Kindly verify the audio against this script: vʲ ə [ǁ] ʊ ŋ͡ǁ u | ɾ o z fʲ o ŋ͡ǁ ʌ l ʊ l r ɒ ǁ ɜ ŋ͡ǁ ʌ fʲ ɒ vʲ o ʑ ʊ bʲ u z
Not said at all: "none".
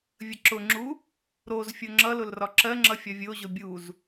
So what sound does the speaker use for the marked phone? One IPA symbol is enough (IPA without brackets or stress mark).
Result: ǁ